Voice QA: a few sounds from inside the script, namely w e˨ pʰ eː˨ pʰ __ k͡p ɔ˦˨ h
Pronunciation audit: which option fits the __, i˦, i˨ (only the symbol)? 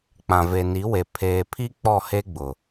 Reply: i˦